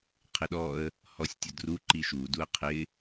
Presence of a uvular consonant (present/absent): present